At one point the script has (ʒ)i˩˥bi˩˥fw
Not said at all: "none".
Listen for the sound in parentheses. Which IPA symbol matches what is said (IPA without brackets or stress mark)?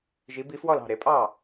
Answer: ʒ